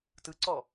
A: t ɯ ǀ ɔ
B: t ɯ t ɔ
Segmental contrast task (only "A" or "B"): A